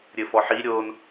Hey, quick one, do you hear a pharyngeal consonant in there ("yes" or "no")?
yes